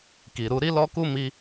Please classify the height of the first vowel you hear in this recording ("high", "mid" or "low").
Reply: high